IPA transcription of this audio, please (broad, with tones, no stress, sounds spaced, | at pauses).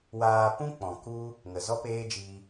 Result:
w aː˧ p ũ˦ k͡p ɔ̃˨ k u˦ | ŋ ə˨ z ɔ˦ p eː˦ d͡ʒ iː˧